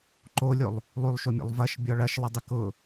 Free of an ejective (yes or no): yes